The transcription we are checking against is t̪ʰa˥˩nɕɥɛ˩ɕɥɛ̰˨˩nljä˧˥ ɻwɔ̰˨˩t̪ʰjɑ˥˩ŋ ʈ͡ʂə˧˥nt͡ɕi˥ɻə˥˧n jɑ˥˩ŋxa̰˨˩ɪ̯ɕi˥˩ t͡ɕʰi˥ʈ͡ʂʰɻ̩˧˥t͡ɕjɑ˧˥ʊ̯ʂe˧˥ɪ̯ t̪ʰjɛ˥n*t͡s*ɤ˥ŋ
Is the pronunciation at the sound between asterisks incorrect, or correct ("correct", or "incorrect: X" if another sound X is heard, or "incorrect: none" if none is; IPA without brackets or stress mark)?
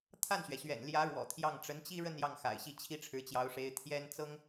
correct